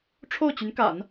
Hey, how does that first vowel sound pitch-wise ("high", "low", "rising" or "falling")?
falling